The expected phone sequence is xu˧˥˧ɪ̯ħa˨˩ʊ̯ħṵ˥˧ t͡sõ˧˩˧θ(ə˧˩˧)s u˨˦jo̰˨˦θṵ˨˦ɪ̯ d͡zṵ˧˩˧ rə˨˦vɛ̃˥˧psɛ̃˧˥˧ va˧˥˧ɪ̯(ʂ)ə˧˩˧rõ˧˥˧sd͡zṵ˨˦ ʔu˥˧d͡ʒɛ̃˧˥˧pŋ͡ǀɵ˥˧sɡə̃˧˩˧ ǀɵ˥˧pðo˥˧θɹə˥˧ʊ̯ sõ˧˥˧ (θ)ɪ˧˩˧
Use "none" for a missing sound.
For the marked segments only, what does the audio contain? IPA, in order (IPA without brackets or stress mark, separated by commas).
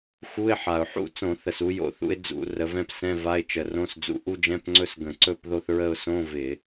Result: ə˨˩, t͡ʃ, v